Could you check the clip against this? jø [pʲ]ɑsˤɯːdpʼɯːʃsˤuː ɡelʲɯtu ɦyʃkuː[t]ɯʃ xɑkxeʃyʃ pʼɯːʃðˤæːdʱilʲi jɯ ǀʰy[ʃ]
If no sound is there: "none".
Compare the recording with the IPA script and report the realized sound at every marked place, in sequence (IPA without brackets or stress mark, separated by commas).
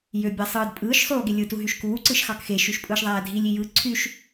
bʲ, ǀ, ʃ